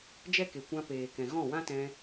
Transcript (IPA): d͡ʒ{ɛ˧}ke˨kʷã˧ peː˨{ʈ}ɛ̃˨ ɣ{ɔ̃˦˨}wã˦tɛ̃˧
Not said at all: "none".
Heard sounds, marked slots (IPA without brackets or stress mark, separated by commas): ɛ˦, k, ɔ̃˦˨